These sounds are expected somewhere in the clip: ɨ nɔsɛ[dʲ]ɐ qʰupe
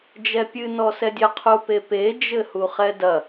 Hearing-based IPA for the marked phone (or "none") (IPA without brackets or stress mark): dʲ